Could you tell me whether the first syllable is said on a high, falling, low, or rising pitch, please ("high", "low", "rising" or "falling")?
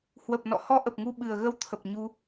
low